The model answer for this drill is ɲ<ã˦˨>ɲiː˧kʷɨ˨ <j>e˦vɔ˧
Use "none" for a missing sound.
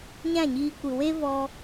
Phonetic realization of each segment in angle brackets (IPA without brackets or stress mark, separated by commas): ã˦˨, w